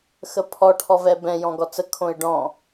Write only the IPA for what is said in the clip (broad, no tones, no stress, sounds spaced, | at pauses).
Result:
x ə pʰ ɔ ʈʰ ɔ v ɛ b ɛ̃ j ɔ̃ ɡ ɔ t͡s ə kʰ õ ɪ̯ ɖ ɔ̃